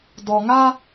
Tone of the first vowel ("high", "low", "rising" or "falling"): low